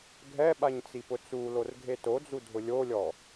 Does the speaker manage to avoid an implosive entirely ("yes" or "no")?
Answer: no